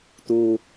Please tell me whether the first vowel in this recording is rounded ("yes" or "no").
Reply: yes